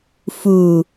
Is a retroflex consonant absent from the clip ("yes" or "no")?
yes